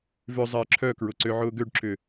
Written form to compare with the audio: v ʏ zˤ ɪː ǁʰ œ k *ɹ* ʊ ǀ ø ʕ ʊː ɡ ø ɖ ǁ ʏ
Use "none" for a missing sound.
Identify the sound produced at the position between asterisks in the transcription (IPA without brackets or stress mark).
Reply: ɹ